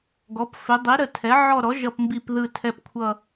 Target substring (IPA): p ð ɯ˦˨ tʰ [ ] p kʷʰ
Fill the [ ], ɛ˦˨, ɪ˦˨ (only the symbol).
ɛ˦˨